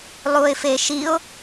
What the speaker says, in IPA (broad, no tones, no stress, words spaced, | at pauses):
lˠuɪ̯feʃiʊ̯